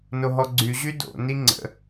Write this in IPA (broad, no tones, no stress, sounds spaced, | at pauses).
n o ɦ ɔ ɡ͡ǀ y ʑ y d o̰ n i ŋ͡ǀ ə̰